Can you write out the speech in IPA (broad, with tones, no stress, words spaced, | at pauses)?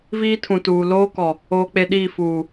viː˦tʰũ˨tuː˨ loː˦kɔ˨ | oː˦k͡pe˦ɗiː˦˨ fuː˨